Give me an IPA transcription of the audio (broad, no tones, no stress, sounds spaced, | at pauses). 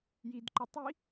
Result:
j i d ǃ œ tˤ i